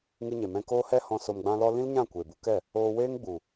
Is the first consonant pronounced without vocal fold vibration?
no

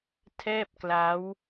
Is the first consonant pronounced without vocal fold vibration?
yes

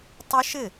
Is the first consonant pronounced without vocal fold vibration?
yes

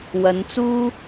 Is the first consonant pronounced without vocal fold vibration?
no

